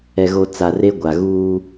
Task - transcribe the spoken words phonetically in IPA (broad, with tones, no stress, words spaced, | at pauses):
ɛ˨ɣo˨t͡sa˨ re˦ ɡʷa˨ɣuː˦